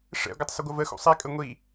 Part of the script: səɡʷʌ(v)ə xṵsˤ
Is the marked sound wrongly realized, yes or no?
no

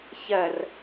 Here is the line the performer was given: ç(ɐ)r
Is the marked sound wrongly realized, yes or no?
no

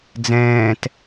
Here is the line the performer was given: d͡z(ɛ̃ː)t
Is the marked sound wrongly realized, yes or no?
no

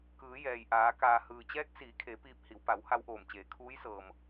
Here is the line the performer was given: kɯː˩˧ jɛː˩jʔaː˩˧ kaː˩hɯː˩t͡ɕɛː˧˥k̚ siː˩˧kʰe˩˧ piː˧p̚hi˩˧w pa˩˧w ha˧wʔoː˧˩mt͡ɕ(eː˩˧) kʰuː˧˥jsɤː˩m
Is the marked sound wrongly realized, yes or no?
no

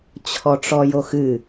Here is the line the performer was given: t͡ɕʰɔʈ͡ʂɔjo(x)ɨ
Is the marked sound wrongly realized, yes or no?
no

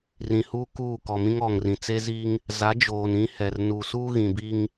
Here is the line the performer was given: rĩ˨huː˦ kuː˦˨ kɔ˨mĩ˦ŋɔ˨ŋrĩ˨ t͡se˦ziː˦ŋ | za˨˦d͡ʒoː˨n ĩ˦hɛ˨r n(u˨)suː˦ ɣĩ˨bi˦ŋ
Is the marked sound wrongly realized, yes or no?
no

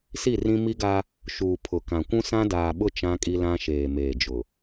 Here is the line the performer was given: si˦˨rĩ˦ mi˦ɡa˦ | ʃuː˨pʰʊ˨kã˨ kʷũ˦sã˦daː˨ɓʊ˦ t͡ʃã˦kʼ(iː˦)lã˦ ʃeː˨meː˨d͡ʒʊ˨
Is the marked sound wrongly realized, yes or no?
yes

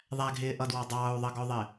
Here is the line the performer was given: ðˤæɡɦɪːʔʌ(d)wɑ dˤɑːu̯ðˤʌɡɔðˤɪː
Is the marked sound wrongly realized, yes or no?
no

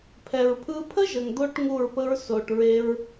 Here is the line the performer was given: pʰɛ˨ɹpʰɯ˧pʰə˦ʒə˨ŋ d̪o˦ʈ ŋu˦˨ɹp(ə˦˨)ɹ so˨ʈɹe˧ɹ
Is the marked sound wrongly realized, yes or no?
yes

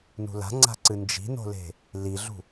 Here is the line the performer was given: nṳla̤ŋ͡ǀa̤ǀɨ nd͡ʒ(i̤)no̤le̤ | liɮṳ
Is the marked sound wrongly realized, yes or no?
no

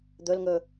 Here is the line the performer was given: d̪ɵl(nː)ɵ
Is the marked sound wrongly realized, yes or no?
yes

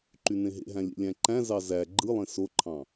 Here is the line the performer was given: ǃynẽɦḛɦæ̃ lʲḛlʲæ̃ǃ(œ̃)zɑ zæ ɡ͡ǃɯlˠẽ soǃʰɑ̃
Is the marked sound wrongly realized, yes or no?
yes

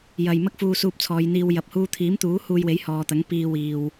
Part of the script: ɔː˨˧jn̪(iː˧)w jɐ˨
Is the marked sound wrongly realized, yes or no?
no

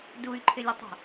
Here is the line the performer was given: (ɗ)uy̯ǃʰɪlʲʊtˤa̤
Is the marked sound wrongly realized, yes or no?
yes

